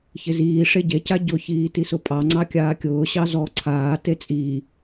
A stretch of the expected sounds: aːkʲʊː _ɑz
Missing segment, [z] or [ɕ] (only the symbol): ɕ